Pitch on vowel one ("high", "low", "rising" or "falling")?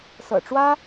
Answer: low